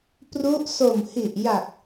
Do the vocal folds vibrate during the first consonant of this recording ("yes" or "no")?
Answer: no